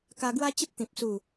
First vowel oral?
yes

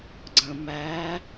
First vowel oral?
no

